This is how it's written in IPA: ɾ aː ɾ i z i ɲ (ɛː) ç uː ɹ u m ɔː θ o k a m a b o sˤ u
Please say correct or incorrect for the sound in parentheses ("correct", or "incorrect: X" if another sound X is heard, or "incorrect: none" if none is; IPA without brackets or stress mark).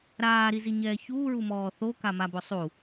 correct